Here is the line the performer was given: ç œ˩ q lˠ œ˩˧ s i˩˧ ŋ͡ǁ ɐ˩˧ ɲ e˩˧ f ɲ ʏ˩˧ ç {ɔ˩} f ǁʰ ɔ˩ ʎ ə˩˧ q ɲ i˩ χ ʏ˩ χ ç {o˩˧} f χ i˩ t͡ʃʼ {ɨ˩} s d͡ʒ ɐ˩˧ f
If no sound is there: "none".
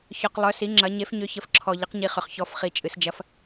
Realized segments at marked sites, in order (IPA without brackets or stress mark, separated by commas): ə˩, ɔ˩˧, ɨ˩